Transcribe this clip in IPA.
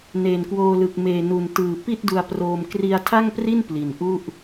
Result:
n eː˨˩ n k w oː˧ l ɯ˨˩ k̚ m eː˨˩ n u˨˩ n t ɯː˨˩ p i˥˩ t̚ d u˧ a̯ p r oː˧ m k r i˧ a̯ tʰ a˥˩ ŋ p r i˥˩ n p l i˨˩ n ʔ u˥˩ ʔ

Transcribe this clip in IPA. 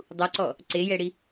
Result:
dˤ u ǀ ɔ | ǀ e j ɛ ɽ i

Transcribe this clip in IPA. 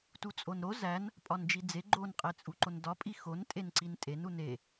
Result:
t u t͡sʼ o n ɾ o z æ n | pʼ ɒ n d͡ʒ i d͡z e ɡ͡ǃ o n qʼ e t͡sʼ u ǃ o n d ɒ pʼ i x o n tʼ e n ǀ i n tʼ e n u n e

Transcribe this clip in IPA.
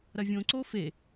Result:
ɾ ɐ vʲ õ ǀ o f e

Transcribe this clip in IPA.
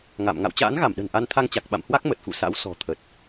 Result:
ŋ a̰˧˨ m ŋ a̰˧˨ w t͡ɕ a̰ː˧˥ n ɣ a˧˩ m ɗ ə̤˨˩ n ʔ a˧ n t̪ʰ a˧ ŋ t͡ɕ a˨˩ k̚ ɓ a̰˧˨ m h w a˦˥ k̚ m ə˨˩ t̚ x ṵ˧˨ s a̰˧˥ w s ɔ̤˨˩ t̪ʰ ə˨˩ t̚

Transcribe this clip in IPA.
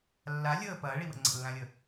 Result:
lː a lʲ əː p ɐː ɭ i w ə̰ ŋ͡ǀ ə̰ lː ã lʲ ə

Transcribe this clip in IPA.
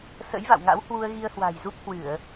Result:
s ə̰˧˥ j v a̰˧˨ w ŋ a̰˧˥ w h w u˧ ə̯ ɣ i˧ ə̯ h w a̤˨˩ j z u˦˥ p̚ h w ɨ˧˩˨ ə̯

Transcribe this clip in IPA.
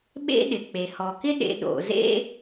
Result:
ɓ ḛ˥ ɗ ɪ˩ k͡p e˩ h ɔ˩ k ɪ˥ ɗ ḛ˨ ɗ o̰˩ z ḛ˦

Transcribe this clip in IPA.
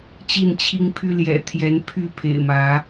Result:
t͡ɕ i˥˨ n t͡ɕʰ i˦ ŋ pʰ y˦ l j ɛ̰˨˩ t̪ʰ j ɛ˨˦ n pʰ y˥˨ pʰ ḛ˨˩ ɪ̯ m ä˨˦

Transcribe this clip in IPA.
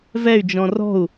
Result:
v ɛ y̯ d͡ʒ ɔ̃ r ɔ̤ u̯

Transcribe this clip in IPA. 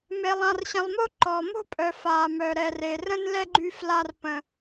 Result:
m e˨ lˠ ã˨ r ɕ ə̃˨ lˠ m o˦ ǃ ɔ˨ m o̤˦ pʼ œ˨ f a˨ m œ˨ ɾ ɛ˨ r e˨ r ə̃˦ n l ɛ˦ ɡ͡ǃ y˦ f l a˦ r p ə̃˦

